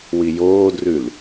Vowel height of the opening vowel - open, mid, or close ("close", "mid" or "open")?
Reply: close